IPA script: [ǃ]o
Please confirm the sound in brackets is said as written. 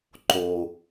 yes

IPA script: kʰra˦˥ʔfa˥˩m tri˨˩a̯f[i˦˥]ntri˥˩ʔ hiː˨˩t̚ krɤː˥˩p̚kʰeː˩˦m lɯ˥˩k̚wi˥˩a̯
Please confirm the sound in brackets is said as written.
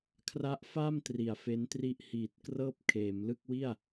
no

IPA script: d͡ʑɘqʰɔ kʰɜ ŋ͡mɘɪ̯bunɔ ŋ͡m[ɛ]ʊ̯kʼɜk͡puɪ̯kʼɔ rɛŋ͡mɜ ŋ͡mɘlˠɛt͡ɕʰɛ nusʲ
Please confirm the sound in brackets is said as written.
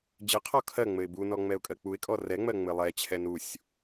yes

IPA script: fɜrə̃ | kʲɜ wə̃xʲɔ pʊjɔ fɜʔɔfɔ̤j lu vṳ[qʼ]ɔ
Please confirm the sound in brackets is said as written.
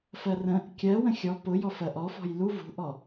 no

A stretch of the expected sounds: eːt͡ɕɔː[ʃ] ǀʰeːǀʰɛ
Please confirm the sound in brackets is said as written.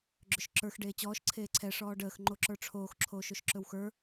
yes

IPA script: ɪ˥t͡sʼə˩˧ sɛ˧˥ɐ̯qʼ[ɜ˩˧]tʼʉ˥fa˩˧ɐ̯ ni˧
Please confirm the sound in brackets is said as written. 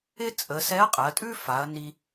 yes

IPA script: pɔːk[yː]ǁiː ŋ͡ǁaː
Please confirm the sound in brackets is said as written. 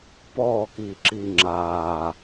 no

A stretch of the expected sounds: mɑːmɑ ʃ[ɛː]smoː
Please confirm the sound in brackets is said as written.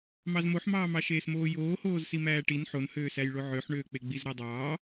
no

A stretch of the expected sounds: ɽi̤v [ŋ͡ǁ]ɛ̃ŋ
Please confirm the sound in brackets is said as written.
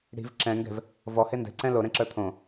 no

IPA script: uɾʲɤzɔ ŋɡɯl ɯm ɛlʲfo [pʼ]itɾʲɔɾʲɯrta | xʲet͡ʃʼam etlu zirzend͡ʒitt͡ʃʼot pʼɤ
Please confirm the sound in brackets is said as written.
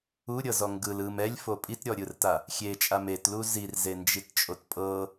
yes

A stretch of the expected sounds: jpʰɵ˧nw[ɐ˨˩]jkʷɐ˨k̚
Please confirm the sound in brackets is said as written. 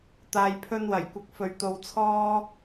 yes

